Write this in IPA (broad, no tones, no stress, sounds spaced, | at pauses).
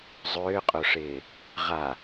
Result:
zˤ ʏː qʼ o ʂ ɪː | ʁ a